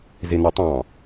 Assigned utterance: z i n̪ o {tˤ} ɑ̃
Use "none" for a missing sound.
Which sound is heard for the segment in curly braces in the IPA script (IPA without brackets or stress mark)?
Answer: tˤ